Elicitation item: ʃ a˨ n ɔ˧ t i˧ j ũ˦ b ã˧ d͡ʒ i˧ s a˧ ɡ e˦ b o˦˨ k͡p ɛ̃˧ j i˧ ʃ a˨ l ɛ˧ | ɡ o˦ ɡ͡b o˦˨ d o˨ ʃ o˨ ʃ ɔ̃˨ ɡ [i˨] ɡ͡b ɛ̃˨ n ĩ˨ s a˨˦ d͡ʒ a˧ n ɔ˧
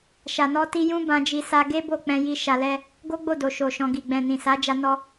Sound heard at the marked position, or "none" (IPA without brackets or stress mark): i˨